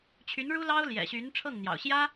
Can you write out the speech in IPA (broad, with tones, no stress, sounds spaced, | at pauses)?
t͡ɕʰ y˧˥ n ɻ u˥ l ɑ˥ ʊ̯ l j ɛ̰˨˩ ɕ y˧˥ n ʈ͡ʂʰ ɤ˥˩ ŋ n̪ j ɑ̰˨˩ ʊ̯ ɕ j ä˥